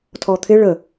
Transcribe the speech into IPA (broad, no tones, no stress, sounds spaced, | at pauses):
tʰ ɔ t̪ʰ ɪ ɭ ə